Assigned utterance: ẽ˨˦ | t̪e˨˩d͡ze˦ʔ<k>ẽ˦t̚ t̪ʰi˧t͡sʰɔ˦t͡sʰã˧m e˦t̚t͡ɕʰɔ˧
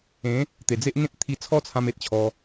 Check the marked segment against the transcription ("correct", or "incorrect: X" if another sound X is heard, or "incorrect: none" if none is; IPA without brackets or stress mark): incorrect: ŋ